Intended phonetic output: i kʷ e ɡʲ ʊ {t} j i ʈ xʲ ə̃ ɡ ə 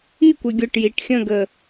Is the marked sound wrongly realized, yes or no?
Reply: yes